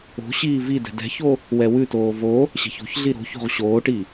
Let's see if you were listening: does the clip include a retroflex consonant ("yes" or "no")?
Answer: yes